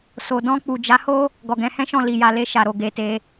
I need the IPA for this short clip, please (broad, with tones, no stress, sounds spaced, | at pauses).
s o˨ d ɔ̃˧ k͡p u˨ d͡ʒ a˨˦ h o˦ | ɡ ɔ˨ ɡ ɛ̃˨˦ h ɛ̃˦ ʃ ɔ̃˦˨ l i˨ j a˨ l e˧ ʃ a˨ ɾ o˨ ɡ e˧ t e˧